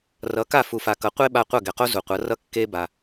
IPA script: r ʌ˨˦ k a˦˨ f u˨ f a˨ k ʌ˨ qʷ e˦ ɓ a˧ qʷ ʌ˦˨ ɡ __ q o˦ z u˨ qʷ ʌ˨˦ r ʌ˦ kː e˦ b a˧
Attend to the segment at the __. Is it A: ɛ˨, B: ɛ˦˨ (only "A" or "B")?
A